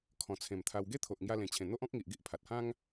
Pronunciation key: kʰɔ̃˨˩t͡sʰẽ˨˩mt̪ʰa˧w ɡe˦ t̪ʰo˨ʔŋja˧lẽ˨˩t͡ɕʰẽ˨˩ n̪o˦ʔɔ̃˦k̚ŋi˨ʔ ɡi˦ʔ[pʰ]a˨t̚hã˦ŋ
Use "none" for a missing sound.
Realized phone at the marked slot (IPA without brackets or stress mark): pʰ